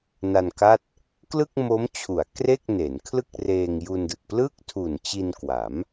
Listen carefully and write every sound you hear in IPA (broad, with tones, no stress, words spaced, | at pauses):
na˧nka˥˩t̚ | klɯ˥˩k̚mo˦˥mt͡ɕʰu˩˦a̯ kre˥˩k̚ne˩˦nkʰlɯ˥˩k̚reː˧ŋ ju˧ndɯ˨˩k̚ plɯ˥˩k̚tʰu˨˩n t͡ɕi˧nkwa˩˦m